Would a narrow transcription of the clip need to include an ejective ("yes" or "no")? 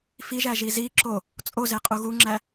yes